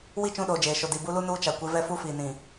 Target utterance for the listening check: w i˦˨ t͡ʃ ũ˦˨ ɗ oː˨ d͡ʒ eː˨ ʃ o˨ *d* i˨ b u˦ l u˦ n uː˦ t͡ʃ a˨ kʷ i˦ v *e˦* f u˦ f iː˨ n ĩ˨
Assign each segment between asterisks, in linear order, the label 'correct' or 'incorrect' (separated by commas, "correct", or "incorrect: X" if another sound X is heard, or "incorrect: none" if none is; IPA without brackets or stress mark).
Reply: correct, incorrect: ɛ˦